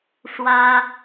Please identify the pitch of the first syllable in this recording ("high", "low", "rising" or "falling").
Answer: high